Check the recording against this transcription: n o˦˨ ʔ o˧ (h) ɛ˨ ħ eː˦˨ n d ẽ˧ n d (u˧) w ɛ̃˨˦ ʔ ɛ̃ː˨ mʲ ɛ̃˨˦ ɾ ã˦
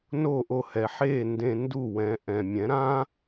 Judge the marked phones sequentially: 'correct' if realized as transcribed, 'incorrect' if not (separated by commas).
correct, incorrect